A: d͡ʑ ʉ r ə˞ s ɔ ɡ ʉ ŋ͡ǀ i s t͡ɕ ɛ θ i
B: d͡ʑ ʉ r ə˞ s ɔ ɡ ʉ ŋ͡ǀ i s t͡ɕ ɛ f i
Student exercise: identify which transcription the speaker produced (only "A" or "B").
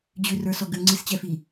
B